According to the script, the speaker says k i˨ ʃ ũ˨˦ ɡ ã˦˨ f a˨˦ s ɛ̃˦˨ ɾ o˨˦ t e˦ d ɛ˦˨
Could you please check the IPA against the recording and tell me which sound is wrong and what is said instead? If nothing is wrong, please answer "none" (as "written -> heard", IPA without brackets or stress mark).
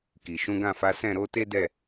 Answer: none